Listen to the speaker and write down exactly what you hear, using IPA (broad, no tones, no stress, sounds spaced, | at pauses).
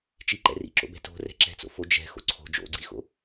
t͡ʃ i ǃ ɛ̰ r ḭ ǁ o̰ b ɛ̤ t o̤ r ɛ̤ ǁ ɛ̤ t͡s o̰ f o d͡ʒ ɛ̤ x o̰ ǀʰ o̤ d͡ʒ o̰ ɡ͡ǀ i x o̰